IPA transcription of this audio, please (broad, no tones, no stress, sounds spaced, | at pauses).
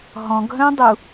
ɦ ɔ̃ ɡ ɦ œ̃ dˤ u